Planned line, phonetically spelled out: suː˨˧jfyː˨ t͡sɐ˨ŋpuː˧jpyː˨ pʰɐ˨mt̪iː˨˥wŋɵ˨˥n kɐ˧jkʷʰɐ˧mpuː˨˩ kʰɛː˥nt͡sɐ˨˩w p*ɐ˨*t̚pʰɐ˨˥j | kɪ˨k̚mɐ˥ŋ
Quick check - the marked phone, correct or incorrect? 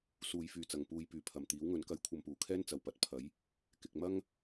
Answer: incorrect